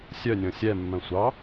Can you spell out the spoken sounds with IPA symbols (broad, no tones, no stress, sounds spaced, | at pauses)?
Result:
sʲ œ nʲ ɔ̃ sʲ ɛ mː œ̃ sʷ ɑ